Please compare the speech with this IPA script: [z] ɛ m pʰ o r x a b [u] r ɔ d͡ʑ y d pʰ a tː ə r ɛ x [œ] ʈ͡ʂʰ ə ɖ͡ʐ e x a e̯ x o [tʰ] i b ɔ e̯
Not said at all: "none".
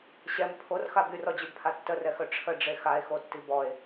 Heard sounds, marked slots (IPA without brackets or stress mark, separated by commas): ɕ, y, œ, tː